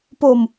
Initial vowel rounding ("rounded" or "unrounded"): rounded